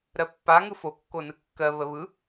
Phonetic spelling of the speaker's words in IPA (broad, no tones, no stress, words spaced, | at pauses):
ɾɜpːa ŋɯfo kːonɯkːɜ βəβɯ